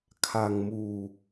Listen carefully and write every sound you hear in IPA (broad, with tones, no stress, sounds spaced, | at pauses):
kʰ a˧ ŋ m uː˧